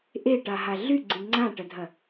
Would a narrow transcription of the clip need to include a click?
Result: yes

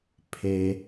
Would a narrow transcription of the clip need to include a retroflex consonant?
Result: no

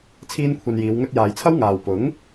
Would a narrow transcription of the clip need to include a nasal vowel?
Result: no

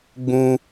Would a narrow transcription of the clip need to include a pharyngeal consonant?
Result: no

